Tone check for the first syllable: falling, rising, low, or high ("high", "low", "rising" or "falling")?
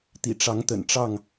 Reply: low